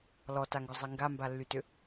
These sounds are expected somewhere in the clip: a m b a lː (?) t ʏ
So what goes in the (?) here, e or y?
y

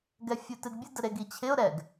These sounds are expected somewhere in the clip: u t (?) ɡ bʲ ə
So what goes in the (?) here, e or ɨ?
ɨ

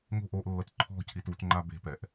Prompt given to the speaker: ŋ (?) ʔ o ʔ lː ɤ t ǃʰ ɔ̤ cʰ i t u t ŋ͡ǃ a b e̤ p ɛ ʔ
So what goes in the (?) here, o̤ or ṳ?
o̤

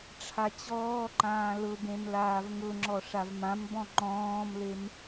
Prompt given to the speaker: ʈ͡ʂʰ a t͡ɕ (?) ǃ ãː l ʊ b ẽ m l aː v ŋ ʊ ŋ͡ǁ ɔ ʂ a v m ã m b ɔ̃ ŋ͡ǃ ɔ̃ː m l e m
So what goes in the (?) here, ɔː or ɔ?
ɔː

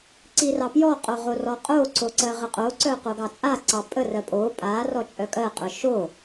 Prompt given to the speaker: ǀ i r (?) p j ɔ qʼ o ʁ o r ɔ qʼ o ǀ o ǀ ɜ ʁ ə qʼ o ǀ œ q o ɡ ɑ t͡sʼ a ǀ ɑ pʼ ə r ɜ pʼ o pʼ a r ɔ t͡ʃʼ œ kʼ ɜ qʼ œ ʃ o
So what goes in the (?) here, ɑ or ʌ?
ɑ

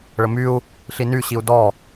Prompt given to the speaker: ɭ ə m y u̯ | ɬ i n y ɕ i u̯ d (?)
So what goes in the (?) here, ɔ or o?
ɔ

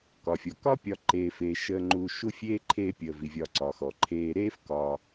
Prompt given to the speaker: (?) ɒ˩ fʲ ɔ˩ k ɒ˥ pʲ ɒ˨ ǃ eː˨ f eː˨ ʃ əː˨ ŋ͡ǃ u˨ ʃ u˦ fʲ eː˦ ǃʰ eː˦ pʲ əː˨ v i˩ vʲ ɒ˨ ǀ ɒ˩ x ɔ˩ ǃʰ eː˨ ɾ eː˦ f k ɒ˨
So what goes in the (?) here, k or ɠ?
k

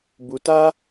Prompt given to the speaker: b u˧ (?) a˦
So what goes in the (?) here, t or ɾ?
t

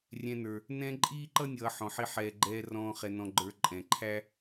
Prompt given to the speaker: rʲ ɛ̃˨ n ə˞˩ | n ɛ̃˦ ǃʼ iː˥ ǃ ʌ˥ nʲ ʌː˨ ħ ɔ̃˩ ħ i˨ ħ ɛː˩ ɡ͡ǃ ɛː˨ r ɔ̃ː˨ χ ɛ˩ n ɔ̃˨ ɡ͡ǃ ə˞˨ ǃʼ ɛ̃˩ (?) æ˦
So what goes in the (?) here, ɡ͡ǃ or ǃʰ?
ǃʰ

